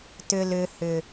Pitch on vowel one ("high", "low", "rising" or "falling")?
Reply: low